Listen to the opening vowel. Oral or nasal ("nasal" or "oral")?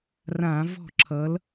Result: nasal